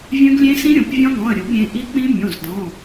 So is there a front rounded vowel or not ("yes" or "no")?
yes